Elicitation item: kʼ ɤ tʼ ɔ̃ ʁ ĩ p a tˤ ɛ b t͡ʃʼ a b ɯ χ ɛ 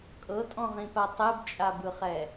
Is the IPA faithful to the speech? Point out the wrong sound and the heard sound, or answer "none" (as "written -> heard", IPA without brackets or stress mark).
none